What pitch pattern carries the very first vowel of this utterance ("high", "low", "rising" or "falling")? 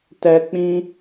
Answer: low